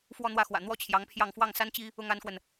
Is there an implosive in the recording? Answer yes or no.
no